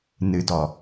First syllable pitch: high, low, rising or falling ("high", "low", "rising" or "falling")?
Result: low